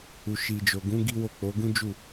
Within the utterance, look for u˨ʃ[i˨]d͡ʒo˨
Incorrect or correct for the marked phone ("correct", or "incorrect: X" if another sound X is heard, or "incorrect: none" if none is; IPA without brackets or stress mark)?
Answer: correct